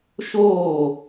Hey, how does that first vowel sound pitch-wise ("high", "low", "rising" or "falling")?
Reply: falling